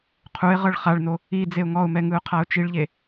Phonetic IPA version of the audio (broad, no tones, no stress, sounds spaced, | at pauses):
qʰ u ɪ̯ ʁ ɤ ɭ χ a ɭ n o | i d͡z e ʊ̯ ŋ ɔ ʊ̯ m ɛ ŋ ɯ ʊ̯ qʰ a ʊ̯ t͡ʃ i ɭ ʎ e